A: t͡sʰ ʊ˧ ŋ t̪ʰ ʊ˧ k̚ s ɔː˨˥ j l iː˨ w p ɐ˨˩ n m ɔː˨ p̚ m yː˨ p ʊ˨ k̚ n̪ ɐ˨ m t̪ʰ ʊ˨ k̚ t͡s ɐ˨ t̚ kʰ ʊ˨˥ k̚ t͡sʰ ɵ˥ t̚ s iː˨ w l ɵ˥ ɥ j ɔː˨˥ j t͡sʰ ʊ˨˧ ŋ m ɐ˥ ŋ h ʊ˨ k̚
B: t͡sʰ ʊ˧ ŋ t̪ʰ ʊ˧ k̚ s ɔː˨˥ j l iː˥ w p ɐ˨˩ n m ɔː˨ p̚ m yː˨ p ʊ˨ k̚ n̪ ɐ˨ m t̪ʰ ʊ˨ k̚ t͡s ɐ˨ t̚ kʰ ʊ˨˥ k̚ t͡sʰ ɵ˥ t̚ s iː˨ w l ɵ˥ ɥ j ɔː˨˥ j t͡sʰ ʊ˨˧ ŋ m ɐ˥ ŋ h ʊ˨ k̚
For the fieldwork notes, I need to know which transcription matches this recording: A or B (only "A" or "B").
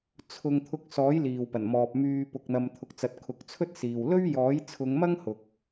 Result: A